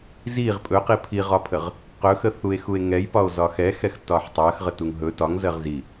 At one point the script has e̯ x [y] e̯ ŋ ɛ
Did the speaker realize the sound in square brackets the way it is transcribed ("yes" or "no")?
no